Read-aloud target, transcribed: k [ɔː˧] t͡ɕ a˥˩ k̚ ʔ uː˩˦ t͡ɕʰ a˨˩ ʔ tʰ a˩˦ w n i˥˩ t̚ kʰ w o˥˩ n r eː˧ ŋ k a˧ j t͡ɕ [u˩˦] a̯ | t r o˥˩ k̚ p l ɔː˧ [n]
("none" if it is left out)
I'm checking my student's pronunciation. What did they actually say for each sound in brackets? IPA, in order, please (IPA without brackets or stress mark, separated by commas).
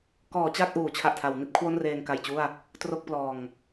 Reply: ɔː˩˦, u˥˩, ŋ